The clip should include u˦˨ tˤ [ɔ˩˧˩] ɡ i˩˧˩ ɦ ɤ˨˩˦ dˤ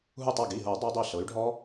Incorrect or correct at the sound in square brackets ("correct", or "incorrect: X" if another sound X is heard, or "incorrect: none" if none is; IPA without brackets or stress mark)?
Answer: correct